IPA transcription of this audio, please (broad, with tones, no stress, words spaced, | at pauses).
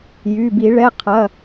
jy˩˧˩ bi˧˩˧ɭɛ˩˧˩ qʰɐ˩˧˩